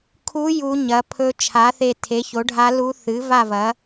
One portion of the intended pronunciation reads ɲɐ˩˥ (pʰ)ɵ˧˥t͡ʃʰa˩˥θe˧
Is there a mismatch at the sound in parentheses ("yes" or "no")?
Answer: no